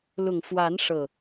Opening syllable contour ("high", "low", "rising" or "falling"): low